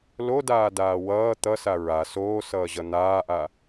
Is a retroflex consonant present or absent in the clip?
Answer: absent